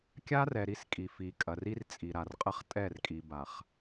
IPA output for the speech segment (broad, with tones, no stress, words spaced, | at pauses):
kʲa˦rɛ˨ ɾi˦skʼi˨ fi˨kʼɐ˨r i˦r t͡sʼi˨ɾa˨rqʼɐ˦χ tʼɛ˦˨rkʼi˨ ba˨χ